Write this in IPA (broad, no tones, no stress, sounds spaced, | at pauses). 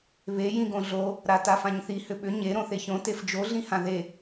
β e j ĩ ɡ õ ɮ o | ɾ a t a f ã ɲ θ i h ʏ ɓ ʏ ɲ e ɾ õ θ e ç õ t e f d͡ʒ o ɮ ĩ h ã ð e